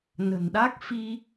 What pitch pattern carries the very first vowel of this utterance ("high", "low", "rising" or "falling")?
low